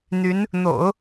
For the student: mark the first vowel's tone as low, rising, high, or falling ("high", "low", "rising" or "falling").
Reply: rising